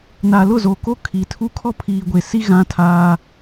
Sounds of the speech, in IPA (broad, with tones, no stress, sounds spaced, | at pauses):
n a˨ l ʊ˦˨ z o˨ k o˦ kʰ i˨ tʰ u˦ kʰ ɔ˦ pʰ iː˨ ɡʷ e˨ s i˦ ɣ ã˦ tʰ aː˦